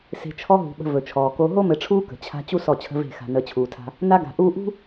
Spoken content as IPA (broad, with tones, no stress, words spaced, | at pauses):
se̤˨t͡ʃʰɔ˦ɦṳ˨ ɓə̤˨ vɵ˨t͡ʃʰɔː˨ko˦ ɦo˦mɘ˨ʈ͡ʂʰuː˦ kə̤˨t͡ɕʰa̤˦ t͡ɕu˦ sɔ˦˨t͡ɕʰə̤˦ve̤˦˨ xa̤˨nəː˨t͡ɕʰuː˨tʰa̤˦ | na˦ɡa̤˨ʔuː˦ ʔṳ˦